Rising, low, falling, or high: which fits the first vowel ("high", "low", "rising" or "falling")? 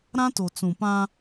high